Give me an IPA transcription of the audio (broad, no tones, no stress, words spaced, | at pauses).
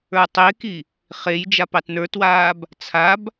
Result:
ə˞tˤeki | χej d͡ʒapɑtnə˞twaːb | t͡sʰab